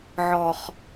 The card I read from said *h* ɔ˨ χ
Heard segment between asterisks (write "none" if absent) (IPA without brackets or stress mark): ʕ